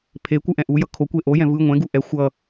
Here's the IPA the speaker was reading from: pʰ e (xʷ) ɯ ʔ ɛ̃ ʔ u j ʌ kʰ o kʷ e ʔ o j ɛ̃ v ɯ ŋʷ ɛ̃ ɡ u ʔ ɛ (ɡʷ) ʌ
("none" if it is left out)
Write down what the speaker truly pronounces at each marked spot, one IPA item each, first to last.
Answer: kʷ, xʷ

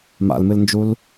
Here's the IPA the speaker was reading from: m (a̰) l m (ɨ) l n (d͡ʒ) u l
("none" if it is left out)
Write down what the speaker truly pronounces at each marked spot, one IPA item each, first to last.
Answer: a̰, ɨ, d͡ʒ

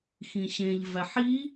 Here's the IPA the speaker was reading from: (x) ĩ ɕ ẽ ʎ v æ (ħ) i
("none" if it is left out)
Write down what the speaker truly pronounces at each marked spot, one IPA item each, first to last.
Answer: x, ħ

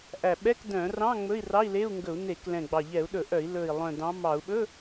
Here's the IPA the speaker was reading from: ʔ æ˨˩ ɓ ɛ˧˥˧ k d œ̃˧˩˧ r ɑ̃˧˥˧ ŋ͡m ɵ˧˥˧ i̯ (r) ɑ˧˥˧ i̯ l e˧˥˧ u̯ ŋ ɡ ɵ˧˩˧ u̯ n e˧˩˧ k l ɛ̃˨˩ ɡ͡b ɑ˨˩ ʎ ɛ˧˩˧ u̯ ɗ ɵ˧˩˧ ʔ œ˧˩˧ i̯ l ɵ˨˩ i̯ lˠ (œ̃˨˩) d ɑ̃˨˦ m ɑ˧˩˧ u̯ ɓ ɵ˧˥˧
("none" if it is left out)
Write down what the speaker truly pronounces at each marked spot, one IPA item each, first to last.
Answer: r, œ̃˨˩

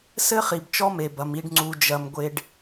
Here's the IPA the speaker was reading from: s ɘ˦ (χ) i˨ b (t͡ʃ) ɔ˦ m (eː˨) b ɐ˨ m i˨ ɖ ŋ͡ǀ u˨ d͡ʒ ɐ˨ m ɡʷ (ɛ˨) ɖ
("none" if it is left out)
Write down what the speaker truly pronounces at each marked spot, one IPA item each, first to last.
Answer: χ, t͡ʃ, e˨, e˨

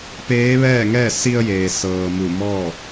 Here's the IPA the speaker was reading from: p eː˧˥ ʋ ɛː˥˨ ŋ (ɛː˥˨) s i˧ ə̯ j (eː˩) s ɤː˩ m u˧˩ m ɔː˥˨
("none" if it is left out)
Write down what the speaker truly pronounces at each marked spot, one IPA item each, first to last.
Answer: ɛː˥˨, eː˩

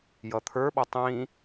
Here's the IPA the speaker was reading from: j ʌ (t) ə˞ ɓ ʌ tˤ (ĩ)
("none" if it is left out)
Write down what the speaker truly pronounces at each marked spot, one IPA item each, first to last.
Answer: t̪ʰ, ĩ

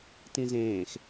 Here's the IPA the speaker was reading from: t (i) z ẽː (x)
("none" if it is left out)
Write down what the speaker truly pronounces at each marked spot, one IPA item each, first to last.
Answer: ĩ, x

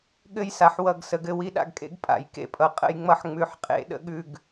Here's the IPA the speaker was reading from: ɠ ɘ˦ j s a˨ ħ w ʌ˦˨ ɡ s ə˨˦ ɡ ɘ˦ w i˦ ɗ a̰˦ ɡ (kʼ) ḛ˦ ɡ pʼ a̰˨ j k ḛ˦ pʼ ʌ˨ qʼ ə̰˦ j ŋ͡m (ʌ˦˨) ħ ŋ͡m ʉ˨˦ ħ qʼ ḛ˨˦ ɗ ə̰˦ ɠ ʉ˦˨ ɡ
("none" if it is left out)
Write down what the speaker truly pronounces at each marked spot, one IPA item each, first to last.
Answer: kʼ, ʌ˦˨

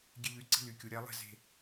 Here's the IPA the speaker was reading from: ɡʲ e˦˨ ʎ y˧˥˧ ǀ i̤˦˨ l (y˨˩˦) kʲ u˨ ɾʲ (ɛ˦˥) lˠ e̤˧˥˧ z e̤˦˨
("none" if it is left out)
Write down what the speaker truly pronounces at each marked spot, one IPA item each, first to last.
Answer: y˨, ɛ˦˥

